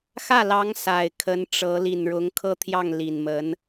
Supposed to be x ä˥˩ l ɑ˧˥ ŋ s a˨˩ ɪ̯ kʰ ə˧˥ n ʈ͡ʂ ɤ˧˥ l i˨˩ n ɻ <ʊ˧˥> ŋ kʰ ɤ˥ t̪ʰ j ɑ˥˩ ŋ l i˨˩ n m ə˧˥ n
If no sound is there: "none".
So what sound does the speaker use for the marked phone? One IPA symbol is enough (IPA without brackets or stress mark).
ʊ˧˥